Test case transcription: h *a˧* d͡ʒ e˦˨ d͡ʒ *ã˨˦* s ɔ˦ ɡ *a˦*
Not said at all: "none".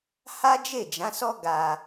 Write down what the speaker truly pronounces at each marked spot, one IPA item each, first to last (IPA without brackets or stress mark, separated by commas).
a˦, ã˨˦, a˧